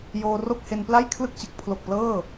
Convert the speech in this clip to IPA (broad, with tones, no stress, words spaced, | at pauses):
joː˧ro˥˩k̚he˧npla˥˩j kʰlɯ˥˩k̚ t͡ɕɯ˨˩k̚pʰlo˨˩k̚ plɤː˥˩